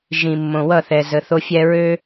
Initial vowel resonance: nasal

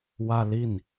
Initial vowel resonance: oral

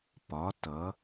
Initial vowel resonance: oral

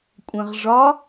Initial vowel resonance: nasal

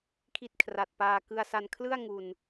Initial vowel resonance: oral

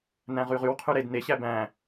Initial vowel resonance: nasal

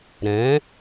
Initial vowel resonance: nasal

